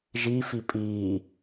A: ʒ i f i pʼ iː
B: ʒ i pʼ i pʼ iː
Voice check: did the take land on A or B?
A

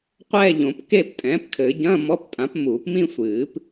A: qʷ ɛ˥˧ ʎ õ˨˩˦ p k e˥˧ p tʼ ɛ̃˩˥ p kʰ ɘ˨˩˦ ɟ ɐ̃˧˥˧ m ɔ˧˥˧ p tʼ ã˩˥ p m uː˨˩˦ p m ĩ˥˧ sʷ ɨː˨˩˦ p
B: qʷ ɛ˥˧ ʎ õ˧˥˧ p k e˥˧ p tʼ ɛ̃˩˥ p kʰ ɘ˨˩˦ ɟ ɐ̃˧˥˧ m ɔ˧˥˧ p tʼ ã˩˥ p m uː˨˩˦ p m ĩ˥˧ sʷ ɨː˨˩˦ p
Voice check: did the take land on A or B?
A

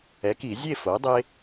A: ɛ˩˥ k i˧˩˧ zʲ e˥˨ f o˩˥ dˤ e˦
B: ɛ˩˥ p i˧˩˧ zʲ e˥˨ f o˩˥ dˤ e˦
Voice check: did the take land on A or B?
A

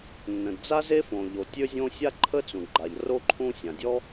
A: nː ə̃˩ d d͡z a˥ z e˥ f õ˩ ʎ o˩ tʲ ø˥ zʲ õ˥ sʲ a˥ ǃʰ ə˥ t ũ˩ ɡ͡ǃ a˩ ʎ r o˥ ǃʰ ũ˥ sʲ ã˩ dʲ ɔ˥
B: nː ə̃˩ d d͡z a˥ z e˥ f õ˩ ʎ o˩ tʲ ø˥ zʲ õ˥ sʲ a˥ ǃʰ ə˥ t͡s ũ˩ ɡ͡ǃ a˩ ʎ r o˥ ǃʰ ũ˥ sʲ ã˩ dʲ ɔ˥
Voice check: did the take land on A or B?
B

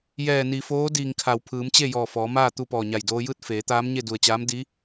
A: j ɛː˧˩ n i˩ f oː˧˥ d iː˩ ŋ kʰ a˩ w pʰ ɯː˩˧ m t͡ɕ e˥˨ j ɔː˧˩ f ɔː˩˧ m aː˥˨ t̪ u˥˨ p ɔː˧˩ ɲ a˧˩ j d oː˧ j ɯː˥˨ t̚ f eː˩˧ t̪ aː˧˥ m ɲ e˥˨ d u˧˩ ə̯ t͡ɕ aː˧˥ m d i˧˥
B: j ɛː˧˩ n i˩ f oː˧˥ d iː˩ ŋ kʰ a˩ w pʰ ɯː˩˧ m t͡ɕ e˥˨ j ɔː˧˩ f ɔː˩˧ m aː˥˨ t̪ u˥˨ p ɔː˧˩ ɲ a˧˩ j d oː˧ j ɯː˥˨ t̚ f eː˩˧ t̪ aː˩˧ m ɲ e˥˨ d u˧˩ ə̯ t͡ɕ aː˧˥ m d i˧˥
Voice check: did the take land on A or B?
A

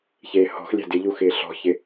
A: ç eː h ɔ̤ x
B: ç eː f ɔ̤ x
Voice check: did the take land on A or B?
A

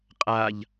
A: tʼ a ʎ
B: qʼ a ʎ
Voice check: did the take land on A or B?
B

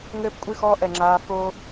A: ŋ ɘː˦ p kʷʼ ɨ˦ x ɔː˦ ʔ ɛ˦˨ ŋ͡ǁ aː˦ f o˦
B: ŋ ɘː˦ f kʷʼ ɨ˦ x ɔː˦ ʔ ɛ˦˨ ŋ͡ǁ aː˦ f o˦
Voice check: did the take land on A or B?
A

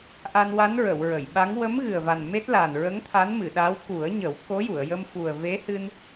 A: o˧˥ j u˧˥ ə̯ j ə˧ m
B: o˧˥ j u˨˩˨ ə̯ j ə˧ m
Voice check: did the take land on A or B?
B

